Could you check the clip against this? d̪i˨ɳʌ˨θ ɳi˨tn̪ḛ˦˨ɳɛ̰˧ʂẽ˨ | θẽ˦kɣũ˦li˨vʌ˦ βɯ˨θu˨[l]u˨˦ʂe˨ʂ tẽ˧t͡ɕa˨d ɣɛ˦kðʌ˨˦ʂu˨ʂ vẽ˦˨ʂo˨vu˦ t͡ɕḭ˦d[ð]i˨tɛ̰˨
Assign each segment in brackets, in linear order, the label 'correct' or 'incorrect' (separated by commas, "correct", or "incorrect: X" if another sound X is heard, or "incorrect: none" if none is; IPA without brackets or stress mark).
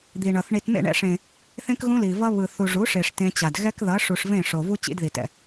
incorrect: ʐ, correct